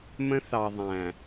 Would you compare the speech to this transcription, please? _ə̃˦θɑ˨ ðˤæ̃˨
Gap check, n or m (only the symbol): m